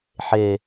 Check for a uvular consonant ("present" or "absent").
absent